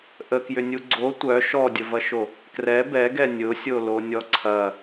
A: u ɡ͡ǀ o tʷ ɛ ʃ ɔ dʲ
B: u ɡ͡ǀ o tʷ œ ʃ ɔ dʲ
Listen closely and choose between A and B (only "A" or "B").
B